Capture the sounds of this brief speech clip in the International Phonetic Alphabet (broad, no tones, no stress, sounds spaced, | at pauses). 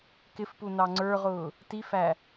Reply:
k ɪ f p u n ɑ ŋ͡ǀ ə˞ ʁ ʊː | t i f æ